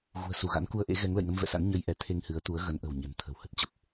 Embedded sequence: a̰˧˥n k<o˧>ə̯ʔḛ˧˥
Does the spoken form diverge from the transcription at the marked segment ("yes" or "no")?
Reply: yes